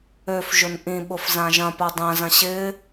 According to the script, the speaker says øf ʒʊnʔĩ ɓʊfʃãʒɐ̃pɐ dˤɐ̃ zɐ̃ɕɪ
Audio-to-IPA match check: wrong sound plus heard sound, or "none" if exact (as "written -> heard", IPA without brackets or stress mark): ʃ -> z